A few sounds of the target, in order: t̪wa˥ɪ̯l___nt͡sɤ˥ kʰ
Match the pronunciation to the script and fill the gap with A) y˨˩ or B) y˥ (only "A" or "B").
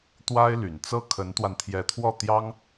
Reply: A